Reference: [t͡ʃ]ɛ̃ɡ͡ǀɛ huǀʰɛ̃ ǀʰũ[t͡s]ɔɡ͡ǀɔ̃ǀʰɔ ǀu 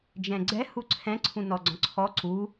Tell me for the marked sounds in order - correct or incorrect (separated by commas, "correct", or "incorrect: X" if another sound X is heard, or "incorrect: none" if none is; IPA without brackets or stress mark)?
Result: incorrect: d͡ʒ, incorrect: n